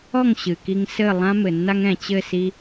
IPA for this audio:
ɔ˥˩ ŋ ɕ ɨ˩ k i˧ ŋ s ɘ˥˩ lˠ ã˥ m ɘ˩ nː a˥ ŋ ɛ̃˩ t͡ɕ ɘ˥˩ s i˧

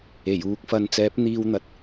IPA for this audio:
e˨˩ j uː˨˥ k̚ f ɐ˧ n t͡s ɛː˨˥ p̚ n̪ iː˧ w n̪ ɐ˨ t̚

